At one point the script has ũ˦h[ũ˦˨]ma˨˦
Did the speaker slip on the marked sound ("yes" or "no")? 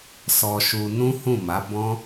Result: no